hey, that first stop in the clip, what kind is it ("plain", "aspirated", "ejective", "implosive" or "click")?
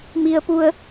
plain